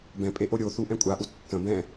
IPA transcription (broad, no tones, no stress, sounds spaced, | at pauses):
b ɛ̃ pʼ e ʔ o ɾʲ o θ u ʔ ɛ̃ kʷʼ a ʔ u tː ə̃ b ɛ̃